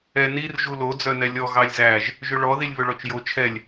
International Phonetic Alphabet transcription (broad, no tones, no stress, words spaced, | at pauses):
ɛ nir ʒulo d͡zœnɛlʲɔ ɣɑlʲzæʒ | ʒɵɭɔ ðilʲβɵɭɔt͡ʃjo t͡ʃʰɛlʲ